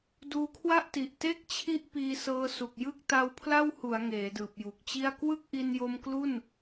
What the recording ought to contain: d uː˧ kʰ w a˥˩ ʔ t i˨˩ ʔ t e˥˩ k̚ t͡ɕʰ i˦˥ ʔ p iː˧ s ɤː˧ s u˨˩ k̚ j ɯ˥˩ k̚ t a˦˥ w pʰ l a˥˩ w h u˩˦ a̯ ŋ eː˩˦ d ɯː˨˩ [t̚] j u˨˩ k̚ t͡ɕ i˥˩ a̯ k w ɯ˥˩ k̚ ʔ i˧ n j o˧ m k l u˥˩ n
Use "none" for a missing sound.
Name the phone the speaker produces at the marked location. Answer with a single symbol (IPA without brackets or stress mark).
p̚